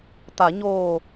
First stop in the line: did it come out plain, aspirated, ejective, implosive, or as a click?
plain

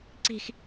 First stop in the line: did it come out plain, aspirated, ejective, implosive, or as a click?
click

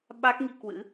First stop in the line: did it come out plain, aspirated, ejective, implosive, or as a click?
implosive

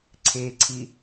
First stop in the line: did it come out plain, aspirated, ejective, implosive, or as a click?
click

